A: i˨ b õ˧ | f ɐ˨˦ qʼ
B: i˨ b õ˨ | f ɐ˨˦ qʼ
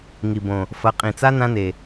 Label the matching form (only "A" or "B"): B